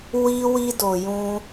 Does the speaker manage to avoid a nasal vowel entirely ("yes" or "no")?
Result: no